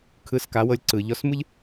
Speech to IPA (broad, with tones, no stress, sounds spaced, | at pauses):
kʰ ɯ˨˦ s k a˨˦ w ɤ˧ lʲ ǀ ɯ˨ ʎ ɔ˧ s m ɯ˦ ʎ